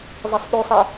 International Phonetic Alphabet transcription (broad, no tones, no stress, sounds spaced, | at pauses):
zˤ e sˤ ɗ u sˤ ɛ